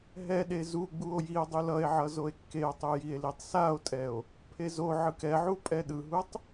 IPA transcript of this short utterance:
ɦ ɛ ɗ e z u ɡ͡b u o̯ j i o̯ dˤ u l ʌ e̯ ʕ ʌ z o e̯ kː e o̯ tˤ u j i e̯ l i tˤ s a o̯ tʼ ɛ o̯ | pʰ e z o ʕ ɯ k ɛ ʕ u pʼ ɛ ɗ ɯ ɦ u tˤ

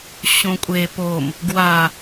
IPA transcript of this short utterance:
ɕ õ kʷʼ e p o m | ɡ w a

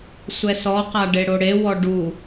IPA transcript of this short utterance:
sʷ ɛ s ɔ q a ɖ e ɽ o ɽ e w ɔ ɖ u

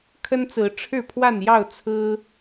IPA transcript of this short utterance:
kʰ ə˦ n t͡s ɹ̩˨˦ ʈ͡ʂʰ ɻ̩˥˨ pʰ w a˥˨ n j ɑ˥˨ ʊ̯ t͡sʰ ɹ̩˦

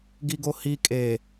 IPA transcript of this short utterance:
ɡ i ɡ o h i kʼ e

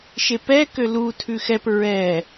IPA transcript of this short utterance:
ʃ e p ɛ k ø l u tʰ ʉ x ɛ p ɹ ɛ

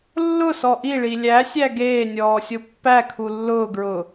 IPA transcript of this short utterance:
lː ʊ s ɔ ʔ i ɭ i lʲ æ sʲ æ ɡ eː nʲ ɔː sʲ o pː æ kʰ u lː ʊː ɡ ɹ ʊ

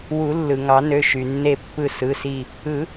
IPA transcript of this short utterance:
w u˨˩˦ lː ɯ˩ ŋ ɑ˨˩˦ n ø˩˧˩ ʃ y˩ nː e˧˩ pː ɯ˧˩ s ɯ˩˧˩ s i˧˩ | ɯ˨˩˦

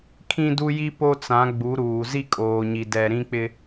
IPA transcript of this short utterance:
kʰ ĩ˦ d u˦ j i˦ p o˦ t͡s ã˨˦ ɡ͡b u˨˦ ɾ uː˨ z i˦ kʼ oː˨ ɲ i˨ d ɛ˨ ɾ ĩ˦ k͡p ɪ˦

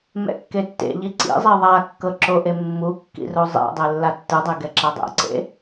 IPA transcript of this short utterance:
m ɛ̰ kː e tː ḛ ʎ i ǀ ḭ zˤ i ðˤ a kː ɤ ǁ o ʔ e mː u kː ḭ r o zˤ ḛ dˤ e lː a tː ɯ dˤ e ɡ ɛ ǁ a dˤ ɛ̰ ǀ ḛ

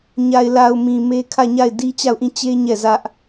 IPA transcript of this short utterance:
ɲ a˨ ɪ̯ l a˨ ʊ̯ m ĩ˨ m e˦ kʰ ä˦˨ ɲ a˦˨ ɪ̯ d i˦ t͡ɕ a˦˨ ʊ̯ ʔ ĩ˦˨ t͡ɕ e˦ ɲ ɛ˦˨ z ä˦ ʔ

